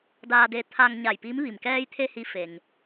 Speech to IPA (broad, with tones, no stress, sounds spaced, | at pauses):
d aː˧ d e˧ t̪ʰ a˧ ŋ ɲ a˧˩ j p i˧˥ m ʋ i˩ m k ɛː˧ j t̪ʰ e˧ h i˧˥ f e˩ ŋ